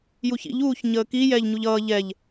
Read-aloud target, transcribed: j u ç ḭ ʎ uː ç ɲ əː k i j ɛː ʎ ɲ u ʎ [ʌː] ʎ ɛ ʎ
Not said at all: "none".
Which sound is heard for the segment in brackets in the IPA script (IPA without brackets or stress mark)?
ʌː